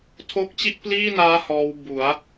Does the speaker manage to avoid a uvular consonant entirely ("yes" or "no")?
yes